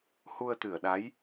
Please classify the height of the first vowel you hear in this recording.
high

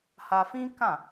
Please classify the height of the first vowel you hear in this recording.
low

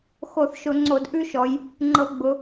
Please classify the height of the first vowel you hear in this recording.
mid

